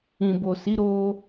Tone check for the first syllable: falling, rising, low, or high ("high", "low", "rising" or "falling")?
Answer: low